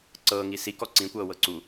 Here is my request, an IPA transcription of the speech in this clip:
ǀ ɤː ŋ i s i k ɔ ǀ ĩ kʷ ɤː w ɤ ǀ u

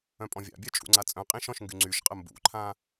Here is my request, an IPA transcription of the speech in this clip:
œ̃ pʼ ɔ̃ vʲ a̰ bʲ œ t͡ʃʼ ṵ ŋ͡ǀ a t͡sʼ œ̃ qʼ ĩ ʃ ɔ̃ ʃ ŋ ɡ y ŋ͡ǀ y ʃ qʼ ə m b ṵ ǃʰ ã

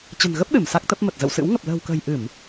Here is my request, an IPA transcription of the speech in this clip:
t͡ɕ ə̤˨˩ n ɣ ə˦˥ p̚ ɗ ɨ˧˩ m s a˦˥ k̚ t̪ ə˦˥ p̚ m ə˨˩ t̚ z ə̰˧˨ w s ɨ̰˧˥ w ŋ ə˨˩ p̚ l ə̤ː˨˩ w k ə̤ː˨˩ j ʔ ɨ˧˩˨ m

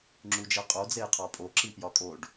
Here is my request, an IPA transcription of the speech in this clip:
ŋ͡ǁ u d͡ʒ e qʼ o d͡z e j qʰ ɒ pʼ o ǁ i p j ɒ kʼ o ɖ

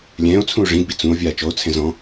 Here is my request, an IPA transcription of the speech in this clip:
lʲ ɛ̃ː o̯ t͡sʰ ũ o̯ ʐ ĩ d b i t͡s ũ o̯ vʲ aː t͡ʃ ɔ o̯ t͡sʰ ɛ̃ z ɔ̃

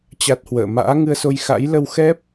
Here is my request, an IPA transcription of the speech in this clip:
t͡ɕ a˦˥ t̚ h w ə̰ː˧˨ m a̰ː˧˥ ŋ ɨ˧ ə̯ s o˧ j x a̰˧˥ j l ə˧ w x ɛ˦˥ p̚

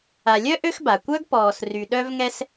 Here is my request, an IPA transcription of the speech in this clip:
a˨ lʲ œ˥ ʔ ø˦ x b a˩ kʷ œ˥ ɡ p ɔː˨ s r y˨ ɗ œ˦ v ŋ ɛ˦ s

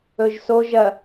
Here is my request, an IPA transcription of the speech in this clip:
ɵ ʒ s o ʒ ɐ

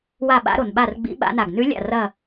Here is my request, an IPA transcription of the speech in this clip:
w a˥˨ ɓ a̰˧˥ ɾ o˩ n ɓ a˥˨ r ɡ͡b ḭ˧˥ ɓ a̰˧˥ n a˧˩ ɡ n ʉ˧˥ lʲ a̰˧˩ r ɐ˧˩

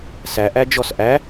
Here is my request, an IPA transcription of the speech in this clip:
s æ ʔ æ d͡ʒ ɔ s ʔ æ

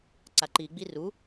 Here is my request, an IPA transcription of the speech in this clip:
ǀ a ǃ i ɡ͡b i r u

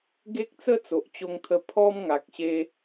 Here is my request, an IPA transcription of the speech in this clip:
ɡ e˦ k̚ t͡s ə˦ t͡s o˨ ʔ t͡ɕ o˧ ŋ t̪ʰ ə˧ pʰ ɔ˦ m ŋ a˨ k̚ ɕ e˧

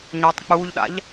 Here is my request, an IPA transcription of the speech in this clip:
ɲ ɔ tˤ k͡p uː ʎ ɗ a̰ ʎ

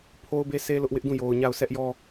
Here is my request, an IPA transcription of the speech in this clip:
pʰ o˦ ʊ̯ b e˦ s e˦ l ʊ˦ ʔ w ɪ˦ ʔ d ũ˦˨ j o˨ ʊ̯ ɲ a˦˨ ʊ̯ sʰ ɛ˦ ʔ j ɔ˦

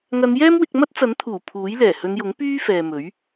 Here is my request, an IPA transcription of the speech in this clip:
ŋ ɐ˨˧ n j ɛː˥ m w ɪ˧ k̚ m ɐ˥ t̚ t͡s ɐ˨˥ n t̪ʰ uː˨˩ pʰ uː˨˥ j l ɛː˨˩ h ɵ˨˧ n j ʊ˨˥ ŋ p yː˥ f ɛː˨ m ɵ˨˥ ɥ

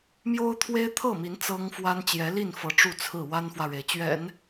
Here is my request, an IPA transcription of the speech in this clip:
m j o˥ ʊ̯ t̪ʰ w e˥ ɪ̯ t̪ʰ ɤ˥˩ m i˧˥ n t͡s ɤ˥ ŋ f w a˥ n t͡ɕ j ɛ˧˥ l i˥˩ n f ɤ˧˥ ʈ͡ʂ u˥˧ t͡sʰ ɹ̩˥˩ w a˥ n f w ä˨ ɻ e˩ ɪ̯ t͡ɕ ɥ ɛ̰˨˩˦ n

